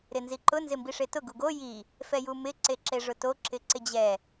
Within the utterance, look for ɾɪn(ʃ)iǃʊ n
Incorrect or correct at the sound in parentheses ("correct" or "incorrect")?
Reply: incorrect